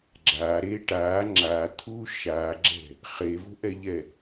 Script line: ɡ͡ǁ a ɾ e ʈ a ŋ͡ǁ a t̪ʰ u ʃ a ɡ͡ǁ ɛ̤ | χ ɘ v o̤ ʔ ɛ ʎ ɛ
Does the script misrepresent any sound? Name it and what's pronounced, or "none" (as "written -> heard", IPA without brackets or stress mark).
ɘ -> e